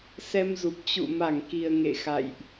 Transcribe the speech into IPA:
s ɛ˧ m z u˨˩ p̚ t͡ɕ ṵ˧˨ m a˧˩ ŋ k i˨˩ ə̯ ŋ ḛ˧˨ x a̰˧˨ j ʔ

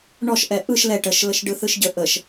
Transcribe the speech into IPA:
ɳ ɔ ʃ ʔ ɛ ʔ ɯ ʃ l ɛ ʈ ə ʃ l ə ʃ ɖ ɯ θ ɯ ʃ ɟ ə ʔ ə ʃ

